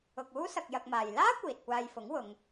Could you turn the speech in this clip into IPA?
ʊ˨ k̚ uː˥ s ɐ˧ k̚ j ɐ˧ k̚ m aː˨ j l aː˥ kʷ iː˨ t̚ kʷ aː˧ j f ʊ˨˥ ŋ w ʊ˨˧ ŋ

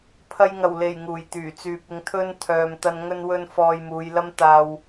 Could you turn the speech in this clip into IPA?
pʰ ɐ˧ j ŋ ɐ˨˩ w l e˨˩ j ŋ uː˨˩ j t̪ yː˨˩ t͡s yː˨ p̚ ɪ˨˧ ŋ t̪ʰ ɵ˧ n t̪ʰ œː˨ m t̪ ɐ˧ n ŋ ɵ˧ n w ɵ˧ n f ɔː˧ j m uː˨˧ j l ɐ˥ m t̪ aː˧ w

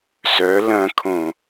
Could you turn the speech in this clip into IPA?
s œ l ɐ̃ kʰ õ

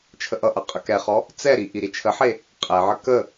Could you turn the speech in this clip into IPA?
t͡ʃʰ ə ʔ ʌ ʔ ʌ qʼ ə k ɛ χ ɔ | t͡s ɛ ɾ i ʔ i ɾ i t͡ʃʰ ə ħ e | qʼ ɛ ʕ ə k ə

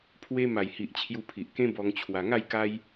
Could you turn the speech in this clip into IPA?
pʰ w e˧ m a˨˩ j h i˨ ʔ t͡ɕʰ j u˧ pʰ i˨ ʔ k ẽ˦ b ɔ˧ ŋ t͡ɕʰ w a˧ ŋ a˥˧ j k a˦ j

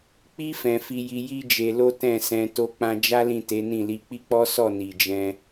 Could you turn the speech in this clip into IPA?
k͡p i˦ f ɛ̃˧ f i˧ j i˧ j i˦ d͡ʒ e˧ l o˦ t ɛ̃˦˨ s ɛ̃˧ t o˧ k͡p ã˧ d͡ʒ a˦ l ĩ˦˨ t e˨˦ n ĩ˦˨ l i˧ k͡p i˦ k͡p ɔ˦ s ɔ˦˨ n i˨ d͡ʒ ɛ̃˧

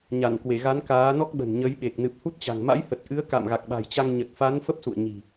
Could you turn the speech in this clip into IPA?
ɲ a˧˩ n k w e˧˩ ɣ a˨˦ n k aː˨˦ n ɔ˦˥ k̚ ɓ ə̤˨˩ n ɲ ə˨˦ j ɓ e˨˩ k̚ n ɨ˨˩ p̚ h u˦˥ t̚ t͡ɕ a̤˨˩ ŋ m a̰˧˥ j h ə˨˩ t̚ ʔ ɨ˨˦ ə̯ k a̰˧˨ m ɣ a˨˩ k̚ ɓ a̤˨˩ j t͡ɕ a˧ ŋ ɲ ə˨˩ t̚ f a˨˦ n f ə˦˥ p̚ s ṵ˧˨ ə̯ ɲ i̤˨˩

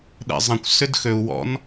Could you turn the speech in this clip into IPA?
ɗ ɛ̰ zˤ ə̃ kʷ s ʏ d x ø u̯ w ɔ̰ n

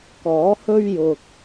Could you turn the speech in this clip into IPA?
k ɔː˨˥ h ɵ˥ ɥ j ʊ˧ k̚

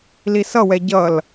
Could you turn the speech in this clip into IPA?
l i s ʌ w ɛ ɟ ʌ l

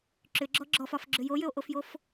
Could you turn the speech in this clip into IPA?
ǁ ʏ ɡ͡ǁ ɔ ɡ͡ǁ ɔ f ɒ f ɡ͡ǁ ʏ j o j ʏ o̯ ʔ o f j o f

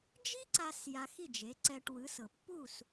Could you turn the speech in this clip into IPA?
d͡ʒ i˥ ǀ a˧ s j a˧ x i˥˩ d͡ʒ e˩˥ ǀ ɛ˧ ʈ w ɯ˩˥ s ɤ˩ pː u˥˩ s

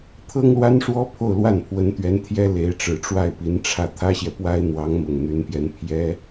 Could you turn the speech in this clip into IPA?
t̪ʰ ɤ˥ ŋ l w a˥ n ʂ w ɔ˥ pʰ o˥˧ ʊ̯ l w a˥˩ n pʰ w ə˧˥ n t̪ ɥ ɛ˧˥ n t̪ʰ j ɛ˥ l e˧˥ ɪ̯ ʈ͡ʂ ɻ̩˨˩ ʈ͡ʂ w a˥˩ ɪ̯ p i˧˥ n ʈ͡ʂʰ ä˥˩ t̪ʰ ä˥ ɕ j ɛ˨ p w a˥ ɪ̯ n̪ w ɑ˧˥ ŋ m ʊ˨˩ ŋ n̪ y˧˥ n p j ɛ˧˥ n pʰ j ɛ˥

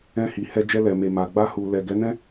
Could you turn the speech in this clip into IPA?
ɛ̃˧ h i˨ h ɛ˧ d͡ʒ ɛ˧ l ɛ˨ m e˨ m a˨ ɡ͡b a˧ h u˨ l ɛ˨ ɡ ɛ˨˦ n ɛ̃˦

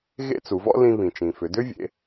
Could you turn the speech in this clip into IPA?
ɣ ḛ˥ t͡s u˩˧ v ɔ̰˥ l ĩ˧ β ĩ˩ t͡ʃ ĩ˩ f ʏ˩˧ d ʏ˥ vʲ ḛ˩˧

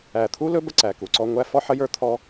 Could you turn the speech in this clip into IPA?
æ˨ t̪ʰ u˦ l ɵ˦ b ə˦ ǀ æ˨ k u˨ ǀ ɔ˦ ŋʷ æ˦ f ɔ˦ ħ ə˦ j ə˞˦ t̪ʰ ɔ˦

